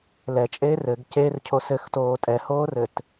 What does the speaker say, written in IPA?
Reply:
l ɛ t͡ʃʼ eː r ɘ ɡ c e r cʰ o s ɘ x t oː tʼ ɛ h oː r ɘ t

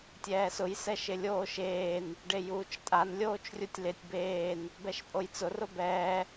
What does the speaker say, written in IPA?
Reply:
tʲ ɛː s ʊ j s ɛ ʃ ɪ lʲ oː ʃ eː n | ɖ e j uː t͡ʃ tʼ a n lʲ oː t͡ʃ rʲ u tʲ l ɪ tʲ b eː n | b ɛ ʃ pʼ o j t͡s ʊ r ʊ b ɛː

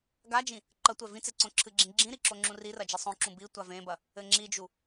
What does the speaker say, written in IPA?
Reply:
ɡ a d͡ʒ ĩ | ǃ ɐ tʷ ɛ v ĩ t͡s e ǀ õ ǁʰ ɨ ɡ͡ǁ ĩ ɡ͡ǁ ĩ ɾ i ǁ o ŋ͡ǁ ũ r i r ɐ d͡ʒ i sˤ õ ǁ ũ b i tʷ a v ẽ b ɐ | ɘ ŋ͡ǁ i d͡ʒ u

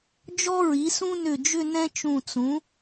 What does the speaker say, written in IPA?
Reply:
d͡ʒ ɔ˥ ɹ i˩˥ s ũ˥ n ʏ˧˩ d͡ʒ ʏ˥˧ n ɛ̃˥ t͡ʃ ũ˧˩ t͡s ũ˩˥

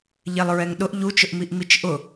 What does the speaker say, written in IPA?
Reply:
ʎ ɛ lˠ ɹ ɛ ŋ ɗ ʊ ʔ ʎ u t͡ʃ ʊ ʔ m i ʔ m i t͡ʃ ʔ ʊ

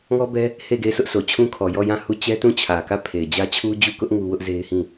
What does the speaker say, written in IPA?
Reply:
ŋ ɔ˦ b ɛ˦ | h e˦˨ ɪ̯ ɡ e˦˨ ɪ̯ s ʊ˦ ʔ s o˨ t͡ɕʰ ũ˦ kʰ ɔ˨ j ɔ˦˨ j ã˦˨ h u˦˨ t͡ɕ ɛ˦ t ũ˦˨ t͡ɕʰ ä˨ k ä˦˨ pʰ e˨ ɪ̯ d͡ʑ ä˦ t͡ɕʰ u˦ d͡ʑ u˦˨ k ʊ˦ ʔ ŋ u˦ w ʊ˦ ʔ z e˦ ɪ̯ h ĩ˦˨

